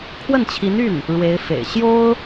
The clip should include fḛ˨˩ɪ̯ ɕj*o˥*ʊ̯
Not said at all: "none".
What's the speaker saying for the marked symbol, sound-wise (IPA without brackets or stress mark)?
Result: o˥